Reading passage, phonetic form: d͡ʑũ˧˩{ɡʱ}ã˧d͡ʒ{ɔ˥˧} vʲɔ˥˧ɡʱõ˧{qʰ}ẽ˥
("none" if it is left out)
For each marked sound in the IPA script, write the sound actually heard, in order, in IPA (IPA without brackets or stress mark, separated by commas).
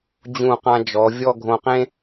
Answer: q, ɔ˩˧, q